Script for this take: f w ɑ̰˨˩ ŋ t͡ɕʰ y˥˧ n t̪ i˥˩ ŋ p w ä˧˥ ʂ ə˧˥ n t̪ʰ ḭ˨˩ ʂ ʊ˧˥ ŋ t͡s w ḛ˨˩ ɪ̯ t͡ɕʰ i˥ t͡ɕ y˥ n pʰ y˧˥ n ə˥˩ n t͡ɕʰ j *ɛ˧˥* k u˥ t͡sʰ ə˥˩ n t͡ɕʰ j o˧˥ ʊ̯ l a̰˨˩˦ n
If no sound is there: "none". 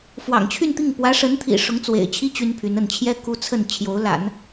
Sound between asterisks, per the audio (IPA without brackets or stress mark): ɛ˥